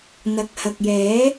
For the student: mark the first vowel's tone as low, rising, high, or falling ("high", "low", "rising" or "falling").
low